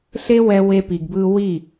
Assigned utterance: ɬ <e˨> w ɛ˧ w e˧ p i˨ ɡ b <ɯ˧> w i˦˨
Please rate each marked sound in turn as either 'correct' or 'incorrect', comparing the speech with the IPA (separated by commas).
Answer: incorrect, correct